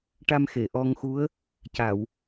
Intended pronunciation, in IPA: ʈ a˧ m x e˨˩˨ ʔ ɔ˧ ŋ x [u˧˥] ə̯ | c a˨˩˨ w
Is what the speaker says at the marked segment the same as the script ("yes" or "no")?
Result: yes